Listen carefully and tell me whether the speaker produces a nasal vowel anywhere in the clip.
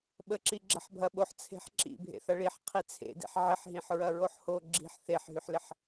yes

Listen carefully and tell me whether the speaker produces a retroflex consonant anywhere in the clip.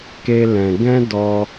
no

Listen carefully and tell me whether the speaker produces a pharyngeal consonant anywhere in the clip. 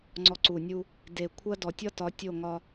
no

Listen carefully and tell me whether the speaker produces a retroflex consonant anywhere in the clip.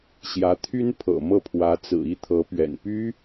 no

